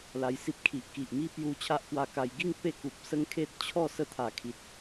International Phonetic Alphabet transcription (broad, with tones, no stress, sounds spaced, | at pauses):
l a˧ j s i˦ p̚ kʰ i˨ ʔ k i˨ ʔ m i˦ p j u˧ t͡ɕʰ a˦ ʔ k w a˧ k a˧ j ɡ i˥˧ ŋ p e˥˧ k u˨ p̚ s ə˦ ŋ kʰ e˦ t̚ t͡ɕʰ ɔ˥˧ s ə˥˧ t̪ʰ a˨˩ kʰ i˨ t̚